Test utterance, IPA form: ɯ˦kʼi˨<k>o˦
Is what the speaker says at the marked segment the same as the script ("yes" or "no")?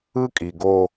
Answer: no